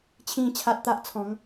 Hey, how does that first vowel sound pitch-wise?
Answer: low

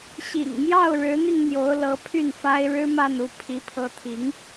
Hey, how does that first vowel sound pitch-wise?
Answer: low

